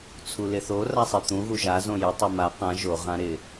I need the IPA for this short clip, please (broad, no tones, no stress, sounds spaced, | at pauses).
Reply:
t͡sʰ u l ɪ θ o r a sˤ i t̪ ũ ɣ u ʒ a z õ j ɪ tˤ u m a q ã ʒ o ʁ ã ɾ ɪ